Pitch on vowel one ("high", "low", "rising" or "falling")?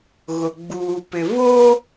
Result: low